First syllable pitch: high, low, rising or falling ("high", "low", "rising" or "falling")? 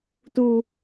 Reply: low